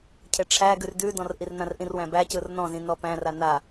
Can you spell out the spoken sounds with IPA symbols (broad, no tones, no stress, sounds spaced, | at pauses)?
cʰ e ʈ͡ʂʰ æ ɡ ʉ r d ʉ d ɔ̃ r ʔ i r n ã r ʔ ĩ r w æ̃ b æ c ɯ r n ɔ̃ z ĩ n ɔ p æ̃ r a n a